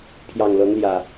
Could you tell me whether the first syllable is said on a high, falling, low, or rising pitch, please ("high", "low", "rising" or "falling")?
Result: low